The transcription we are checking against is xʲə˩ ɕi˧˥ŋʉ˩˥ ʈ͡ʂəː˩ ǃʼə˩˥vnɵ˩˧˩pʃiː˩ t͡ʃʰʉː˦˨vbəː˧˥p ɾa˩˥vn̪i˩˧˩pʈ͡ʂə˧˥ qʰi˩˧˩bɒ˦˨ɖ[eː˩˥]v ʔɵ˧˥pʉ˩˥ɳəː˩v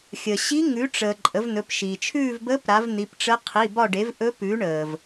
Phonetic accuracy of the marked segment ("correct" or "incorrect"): incorrect